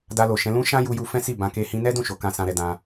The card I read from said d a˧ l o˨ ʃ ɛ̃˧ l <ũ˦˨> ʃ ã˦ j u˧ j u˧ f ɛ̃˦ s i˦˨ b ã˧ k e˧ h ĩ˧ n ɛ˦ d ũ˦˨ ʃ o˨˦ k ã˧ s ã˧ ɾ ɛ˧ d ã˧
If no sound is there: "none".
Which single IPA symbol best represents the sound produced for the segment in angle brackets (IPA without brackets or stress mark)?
ũ˦